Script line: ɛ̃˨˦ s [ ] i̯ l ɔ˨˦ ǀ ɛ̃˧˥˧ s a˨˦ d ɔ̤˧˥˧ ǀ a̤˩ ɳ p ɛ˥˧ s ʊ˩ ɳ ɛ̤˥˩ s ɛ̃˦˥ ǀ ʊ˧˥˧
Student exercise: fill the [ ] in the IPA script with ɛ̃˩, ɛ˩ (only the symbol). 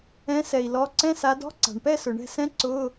ɛ˩